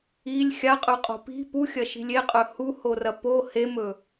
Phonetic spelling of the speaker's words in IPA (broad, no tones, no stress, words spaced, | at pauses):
ilʲ xʲaqʼʉqʼo̤ pi̤ puxʲɐʃi̤lʲ eqʼɵ huhorɐ po hemɵ